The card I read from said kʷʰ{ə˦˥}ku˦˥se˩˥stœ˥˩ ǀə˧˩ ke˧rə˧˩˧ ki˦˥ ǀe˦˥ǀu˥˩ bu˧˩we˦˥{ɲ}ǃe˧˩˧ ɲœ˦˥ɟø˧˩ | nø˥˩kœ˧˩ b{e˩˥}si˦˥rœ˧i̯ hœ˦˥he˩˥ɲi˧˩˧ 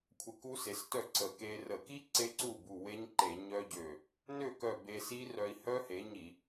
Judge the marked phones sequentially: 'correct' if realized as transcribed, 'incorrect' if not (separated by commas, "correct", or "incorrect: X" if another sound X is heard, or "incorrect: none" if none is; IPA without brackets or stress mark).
incorrect: ə˧, correct, incorrect: e˧